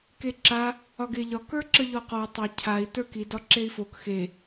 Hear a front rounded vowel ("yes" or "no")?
no